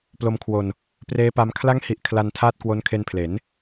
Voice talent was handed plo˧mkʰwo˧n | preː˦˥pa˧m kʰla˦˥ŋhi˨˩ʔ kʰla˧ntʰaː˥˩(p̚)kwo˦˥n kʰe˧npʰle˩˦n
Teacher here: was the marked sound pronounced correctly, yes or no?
no